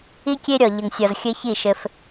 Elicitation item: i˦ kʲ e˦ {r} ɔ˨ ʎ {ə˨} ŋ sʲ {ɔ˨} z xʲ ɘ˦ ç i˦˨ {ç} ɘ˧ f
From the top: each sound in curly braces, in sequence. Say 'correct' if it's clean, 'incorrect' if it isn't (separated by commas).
incorrect, correct, correct, incorrect